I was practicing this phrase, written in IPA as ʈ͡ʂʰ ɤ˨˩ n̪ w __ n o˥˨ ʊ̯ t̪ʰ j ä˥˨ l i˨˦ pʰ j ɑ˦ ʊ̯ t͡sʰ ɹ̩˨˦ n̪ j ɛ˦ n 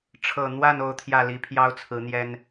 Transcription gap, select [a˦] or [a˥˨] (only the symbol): a˥˨